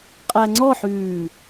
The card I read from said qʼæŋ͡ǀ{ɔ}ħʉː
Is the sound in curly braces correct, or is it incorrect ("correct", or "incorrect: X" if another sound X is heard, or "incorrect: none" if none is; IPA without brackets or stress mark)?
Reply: correct